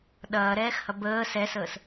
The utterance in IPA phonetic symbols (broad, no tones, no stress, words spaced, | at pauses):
ɗɐːɾɛːxhɐ bəː sɛsəːs